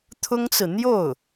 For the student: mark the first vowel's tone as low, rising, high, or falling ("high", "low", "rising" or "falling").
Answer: high